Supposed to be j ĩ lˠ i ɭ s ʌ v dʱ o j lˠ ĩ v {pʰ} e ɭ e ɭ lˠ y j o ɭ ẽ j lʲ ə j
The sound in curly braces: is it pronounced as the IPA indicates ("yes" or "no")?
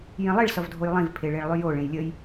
yes